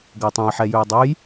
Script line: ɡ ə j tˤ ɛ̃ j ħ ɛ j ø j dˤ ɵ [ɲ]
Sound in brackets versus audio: incorrect: j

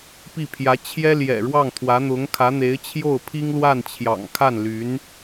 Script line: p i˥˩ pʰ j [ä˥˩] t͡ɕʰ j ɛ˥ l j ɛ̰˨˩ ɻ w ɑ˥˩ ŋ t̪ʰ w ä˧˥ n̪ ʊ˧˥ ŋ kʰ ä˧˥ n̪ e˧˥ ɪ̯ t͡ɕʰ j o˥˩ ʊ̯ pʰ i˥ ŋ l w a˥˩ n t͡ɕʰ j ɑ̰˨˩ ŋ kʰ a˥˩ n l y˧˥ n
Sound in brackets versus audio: incorrect: ä˧˥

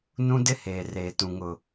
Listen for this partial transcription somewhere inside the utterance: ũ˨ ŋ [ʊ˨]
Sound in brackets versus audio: correct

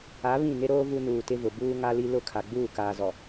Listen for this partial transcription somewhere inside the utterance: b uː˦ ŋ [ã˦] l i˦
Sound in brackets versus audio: incorrect: a˦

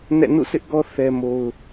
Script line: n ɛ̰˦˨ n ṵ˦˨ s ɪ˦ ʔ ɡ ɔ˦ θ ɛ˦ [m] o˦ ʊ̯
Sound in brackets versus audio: correct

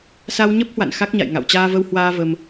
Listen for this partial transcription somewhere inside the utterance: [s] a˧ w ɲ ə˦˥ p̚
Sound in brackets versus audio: correct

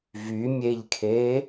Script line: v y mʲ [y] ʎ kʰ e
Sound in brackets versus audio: incorrect: e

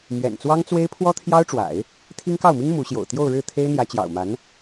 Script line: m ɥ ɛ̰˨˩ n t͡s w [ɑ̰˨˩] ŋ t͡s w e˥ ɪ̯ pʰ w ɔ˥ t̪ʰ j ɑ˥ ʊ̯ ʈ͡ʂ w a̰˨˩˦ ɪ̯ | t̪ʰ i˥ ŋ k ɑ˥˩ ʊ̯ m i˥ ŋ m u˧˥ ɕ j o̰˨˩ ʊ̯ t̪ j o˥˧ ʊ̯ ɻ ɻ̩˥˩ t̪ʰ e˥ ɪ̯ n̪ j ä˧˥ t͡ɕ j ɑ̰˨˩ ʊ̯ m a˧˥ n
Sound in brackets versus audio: incorrect: ɑ˥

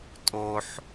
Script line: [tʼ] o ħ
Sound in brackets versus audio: correct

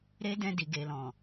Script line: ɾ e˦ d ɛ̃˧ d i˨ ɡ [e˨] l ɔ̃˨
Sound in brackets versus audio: correct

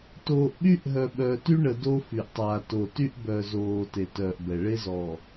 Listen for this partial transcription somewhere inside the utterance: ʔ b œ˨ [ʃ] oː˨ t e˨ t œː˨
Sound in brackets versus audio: incorrect: z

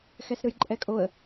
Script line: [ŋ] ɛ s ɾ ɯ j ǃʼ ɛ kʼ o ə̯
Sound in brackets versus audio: incorrect: x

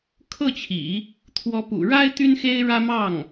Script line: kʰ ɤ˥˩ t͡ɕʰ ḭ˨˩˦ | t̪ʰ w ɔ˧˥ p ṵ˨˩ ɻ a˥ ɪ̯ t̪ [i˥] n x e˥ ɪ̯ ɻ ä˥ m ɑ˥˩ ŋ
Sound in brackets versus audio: incorrect: y˥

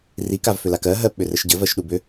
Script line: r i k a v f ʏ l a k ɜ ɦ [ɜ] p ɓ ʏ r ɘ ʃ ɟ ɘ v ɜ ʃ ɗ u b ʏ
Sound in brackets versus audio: correct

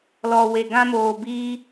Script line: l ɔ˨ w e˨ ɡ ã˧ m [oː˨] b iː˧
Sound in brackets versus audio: correct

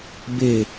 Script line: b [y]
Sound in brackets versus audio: incorrect: e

